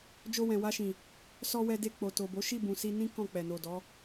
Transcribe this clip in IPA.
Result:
d͡ʒo˧wɛ̃˨wa˧ʃĩ˨ | sɔ˧wɛ˧de˧ k͡po˨to˨bo˨˦ ʃi˦˨bũ˨si˧ nĩ˦ kɔ̃˦˨k͡pɛ˨no˨dɔ˨˦

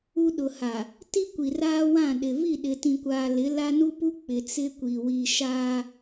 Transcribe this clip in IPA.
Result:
u˦ ɗʊ˨ha˨ | ti˦kʷi˨raː˦ wã˦˨ɗɪ˨ vi˦˨ɗɪ˨tĩ˨kʷaː˨ lɪ˨˦ la˦nu˦pu˦ k͡pɪ˨ t͡sɪ˦kʷi˨ wi˨ ʃaː˦

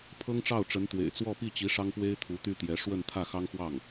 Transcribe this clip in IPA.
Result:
pʰɤ˥ŋʈ͡ʂɑ˥˩ʊ̯ʈ͡ʂə˧˥nt̪wḛ˨˩ɪ̯ t͡swɔ˥˧pi˥˩t͡ɕi˧˥ ʂɑ˥ŋpwe˥ɪ̯t̪ʰu˧˥ t̪y˥t̪jɛ˧˥ ʂwə˥˧nt̪ʰä˥˩xɑ˥ŋxwɑ˥˩ŋ

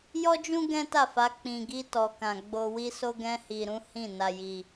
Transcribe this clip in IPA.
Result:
jɔ˦d͡ʒũ˦ ɡɛ̃˦ta˦˨fa˨˦ k͡pĩ˧ɡi˦ tɔ˧kã˧ ɡ͡bo˧wi˦so˦ɡɛ̃˦ hi˧ɾũ˦ hĩ˦˨ na˧ji˧

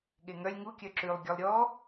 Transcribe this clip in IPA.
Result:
ɠeŋœlʲ ŋu kʲœǁʉlˠ ɡʲɔlˠɾʲɔ

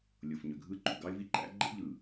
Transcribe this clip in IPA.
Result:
lʲo˨fɲø˨ɡʱɯ˦ ǃṵ˨ɡɑ˦ɪ̯vi˦ ǃæ̰˦ ɡ͡ǃḛ˦ʎɯ˨

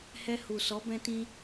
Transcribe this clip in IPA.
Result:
hɛ˧hu˨sɔ˨˦ bɛ̃˧tĩ˧

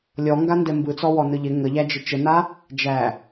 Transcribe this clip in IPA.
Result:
lʲɔŋɡandɛ mbɯt͡sɔwɔ nɯʎɪ ŋəʎæd͡ʒɪ t͡ʃəna | d͡ʒæ

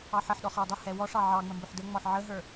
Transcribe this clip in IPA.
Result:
ɑħəħɗɔ χə˞dˤʊhɛ wɔʂɑ ʕɑŋ͡mə mbʊħdəŋ͡mɔħ ʕəɦə˞

